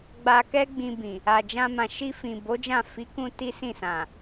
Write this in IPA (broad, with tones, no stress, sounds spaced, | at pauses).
ɡ͡b a˧ k ɛ˦ ɡ͡b ĩ˧ b ĩ˨ | a˨ d͡ʒ ã˧ m ã˨ ʃ i˧ f ĩ˨ b o˨˦ d͡ʒ ã˦˨ f i˨˦ k ũ˧ t i˦ s ĩ˦˨ s ã˨